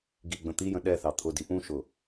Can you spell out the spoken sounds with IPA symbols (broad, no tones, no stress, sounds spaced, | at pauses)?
ɡ i ɡ͡b ə̃ t̪ i j ə̃ ɗ ɛ θ ɑ t̪ʰ ʊ d i ʔ ũ ʃ ʊ